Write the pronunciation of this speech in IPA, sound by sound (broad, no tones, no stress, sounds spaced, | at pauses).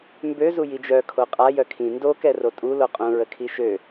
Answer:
m b ø z u j i d͡ʒ œ kʰ o qʼ a j œ kʰ ĩ n d o k ɛ r o tʼ u l o qʼ ũ ɹ ə kʰ i ʃ ø